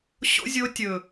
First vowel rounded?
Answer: yes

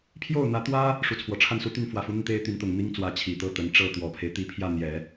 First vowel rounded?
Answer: yes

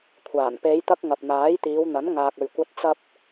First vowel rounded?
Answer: no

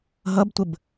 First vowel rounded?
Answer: no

